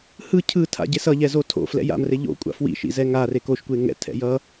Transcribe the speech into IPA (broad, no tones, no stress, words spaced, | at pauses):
hɯ cʰɯ tʰa̰ɟesʌʎɛ zotʰo̰ flɛ̰ja̰mre ʎo̰ kʷʼa̰fwḭʃḭ zɛŋa rekoʃkʷe ŋɛ̰ tʰɛ̰jʌ